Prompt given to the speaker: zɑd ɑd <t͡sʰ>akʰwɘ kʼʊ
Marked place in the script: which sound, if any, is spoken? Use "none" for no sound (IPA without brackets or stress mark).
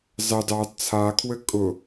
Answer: t͡sʰ